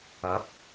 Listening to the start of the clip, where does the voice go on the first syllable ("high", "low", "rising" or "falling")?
rising